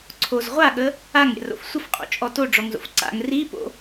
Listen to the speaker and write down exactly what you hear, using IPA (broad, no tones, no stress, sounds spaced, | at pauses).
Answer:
ǀʰ o z ʁʷ a ɠ ə | a ŋ ɾʲ a̰ r o̰ f sʷ ə f qʼ o̰ t͡ʃʼ ɔ t o ɖ͡ʐ ɔ ŋ z o̰ f ǀ a̰ ŋ r i p o̰